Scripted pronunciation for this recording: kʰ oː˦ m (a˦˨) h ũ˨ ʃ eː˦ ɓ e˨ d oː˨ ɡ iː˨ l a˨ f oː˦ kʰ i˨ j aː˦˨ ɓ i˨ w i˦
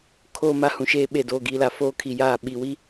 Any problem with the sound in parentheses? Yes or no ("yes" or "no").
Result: yes